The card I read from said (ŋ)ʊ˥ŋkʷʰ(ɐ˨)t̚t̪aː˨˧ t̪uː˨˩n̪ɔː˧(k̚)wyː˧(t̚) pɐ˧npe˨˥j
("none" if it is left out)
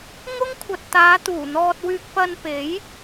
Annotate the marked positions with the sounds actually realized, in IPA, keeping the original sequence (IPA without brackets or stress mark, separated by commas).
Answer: ŋ, ɐ˨, t̚, k̚